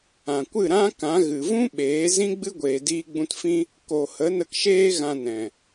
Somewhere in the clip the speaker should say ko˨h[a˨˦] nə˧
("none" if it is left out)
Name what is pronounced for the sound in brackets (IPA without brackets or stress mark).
ə˨˦